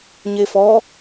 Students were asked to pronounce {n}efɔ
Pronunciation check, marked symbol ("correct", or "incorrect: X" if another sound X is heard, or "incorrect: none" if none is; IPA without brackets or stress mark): incorrect: ɲ